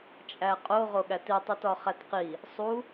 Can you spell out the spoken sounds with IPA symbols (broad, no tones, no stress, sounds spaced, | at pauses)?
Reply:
t͡ʃʼ æ qʼ o ʁ o ɠ æ t i tˤ u t ɒ χ æ t q i | sˤ u